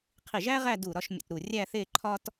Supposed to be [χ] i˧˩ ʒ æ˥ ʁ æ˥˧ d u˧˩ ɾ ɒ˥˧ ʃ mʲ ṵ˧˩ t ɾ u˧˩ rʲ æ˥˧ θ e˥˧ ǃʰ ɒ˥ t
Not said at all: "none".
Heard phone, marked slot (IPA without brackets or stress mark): qʰ